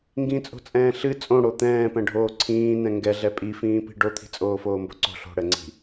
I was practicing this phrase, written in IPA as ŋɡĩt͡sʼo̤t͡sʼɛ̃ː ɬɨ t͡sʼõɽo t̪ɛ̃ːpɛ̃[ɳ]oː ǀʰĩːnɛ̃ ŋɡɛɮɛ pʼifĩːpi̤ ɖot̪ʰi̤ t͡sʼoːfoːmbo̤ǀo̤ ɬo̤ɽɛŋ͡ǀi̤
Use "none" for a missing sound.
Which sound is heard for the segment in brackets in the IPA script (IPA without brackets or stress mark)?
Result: ɖʱ